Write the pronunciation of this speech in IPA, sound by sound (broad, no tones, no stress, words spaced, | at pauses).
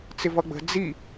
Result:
t͡sɪvʌɡ͡bə̤ d͡zi